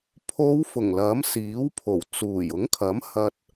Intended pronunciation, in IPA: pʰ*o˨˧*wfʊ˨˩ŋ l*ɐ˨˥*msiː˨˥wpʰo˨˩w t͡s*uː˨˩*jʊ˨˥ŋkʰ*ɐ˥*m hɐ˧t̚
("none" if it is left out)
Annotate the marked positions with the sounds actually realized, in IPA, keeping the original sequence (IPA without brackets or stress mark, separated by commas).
o˨˧, ɐ˨˥, uː˨˩, ɐ˨˥